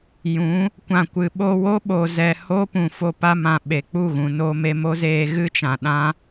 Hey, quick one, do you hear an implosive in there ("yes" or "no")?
yes